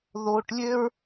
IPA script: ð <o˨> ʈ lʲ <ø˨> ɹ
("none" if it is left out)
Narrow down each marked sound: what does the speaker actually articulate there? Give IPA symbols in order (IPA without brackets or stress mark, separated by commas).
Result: o˨, ø˦